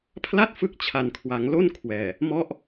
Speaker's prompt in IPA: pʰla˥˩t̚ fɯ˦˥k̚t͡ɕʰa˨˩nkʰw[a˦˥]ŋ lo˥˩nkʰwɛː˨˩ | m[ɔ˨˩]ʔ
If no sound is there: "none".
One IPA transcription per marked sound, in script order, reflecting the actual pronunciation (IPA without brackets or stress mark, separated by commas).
a˩˦, ɔ˦˥